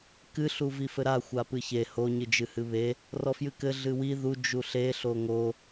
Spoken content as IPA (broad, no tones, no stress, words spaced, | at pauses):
kɨ ɬuvifɘɾa xʷapɨçe ho ɲɨd͡ʒɨhɨβe | rɔfjɨkɘ ɮɨwi ðu d͡ʒuɬe ɬoŋo